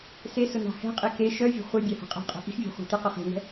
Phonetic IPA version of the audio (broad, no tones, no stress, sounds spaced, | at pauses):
s e s ʊ n a̤ h ɛ̤ qʼ i k e ʃ œ vʲ e̤ χʷ ɘ bʲ a h ɛ̤ qʼ a̤ qʼ ɛ̤ ʔ i̤ x vʲ a̤ χʷ i̤ t e q ʊ χ e̤ n ɛ̤